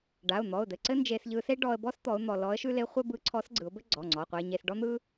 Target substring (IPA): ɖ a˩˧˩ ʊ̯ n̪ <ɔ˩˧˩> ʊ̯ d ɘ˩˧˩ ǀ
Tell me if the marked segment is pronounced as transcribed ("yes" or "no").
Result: yes